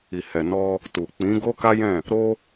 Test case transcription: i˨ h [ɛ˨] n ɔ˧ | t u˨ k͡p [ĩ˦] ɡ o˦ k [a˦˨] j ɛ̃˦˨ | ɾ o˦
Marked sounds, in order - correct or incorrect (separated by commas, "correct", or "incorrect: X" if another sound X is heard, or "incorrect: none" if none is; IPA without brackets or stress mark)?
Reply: correct, incorrect: ĩ˨˦, incorrect: a˦